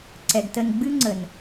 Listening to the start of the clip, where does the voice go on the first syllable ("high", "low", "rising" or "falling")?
low